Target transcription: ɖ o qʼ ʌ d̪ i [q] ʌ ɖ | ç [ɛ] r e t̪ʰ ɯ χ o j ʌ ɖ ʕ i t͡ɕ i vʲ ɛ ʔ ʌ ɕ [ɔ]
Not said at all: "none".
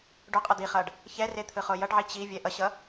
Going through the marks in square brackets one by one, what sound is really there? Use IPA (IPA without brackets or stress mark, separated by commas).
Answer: χ, ɛ, ʌ